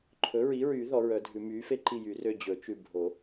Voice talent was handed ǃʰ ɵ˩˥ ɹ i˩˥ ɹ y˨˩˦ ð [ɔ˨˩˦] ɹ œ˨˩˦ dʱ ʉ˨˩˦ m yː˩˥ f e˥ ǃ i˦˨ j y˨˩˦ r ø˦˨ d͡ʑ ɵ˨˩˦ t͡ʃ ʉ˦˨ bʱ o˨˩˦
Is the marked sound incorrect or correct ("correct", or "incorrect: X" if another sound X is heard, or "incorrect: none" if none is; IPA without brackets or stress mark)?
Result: correct